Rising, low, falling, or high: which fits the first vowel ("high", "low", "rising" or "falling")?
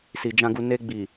low